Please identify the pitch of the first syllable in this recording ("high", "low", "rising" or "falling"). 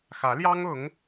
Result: rising